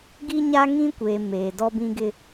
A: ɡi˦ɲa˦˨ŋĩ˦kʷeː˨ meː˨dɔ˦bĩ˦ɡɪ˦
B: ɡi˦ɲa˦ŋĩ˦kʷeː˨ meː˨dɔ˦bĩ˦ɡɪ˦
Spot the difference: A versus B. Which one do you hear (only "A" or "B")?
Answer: B